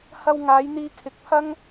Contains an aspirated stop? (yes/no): yes